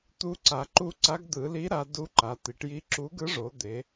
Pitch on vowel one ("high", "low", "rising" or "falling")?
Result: rising